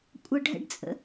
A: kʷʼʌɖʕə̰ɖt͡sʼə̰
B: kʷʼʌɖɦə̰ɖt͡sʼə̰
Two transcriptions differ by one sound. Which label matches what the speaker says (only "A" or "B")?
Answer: B